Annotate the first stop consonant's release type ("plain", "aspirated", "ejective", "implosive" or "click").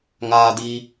plain